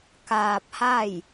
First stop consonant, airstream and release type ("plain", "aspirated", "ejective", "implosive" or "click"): plain